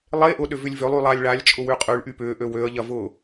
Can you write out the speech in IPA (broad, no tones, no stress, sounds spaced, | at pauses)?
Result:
lˠ e ʔ ʊ ɗ ʏ v ʏ lʲ v ø lˠ y lˠ a lʲ ɭ a lʲ t͡ʃʼ ʊ w y qʼ y ɭ ʔ y p ʏː ʔ ø w ø ə̯ ʎ ɐ v ʊː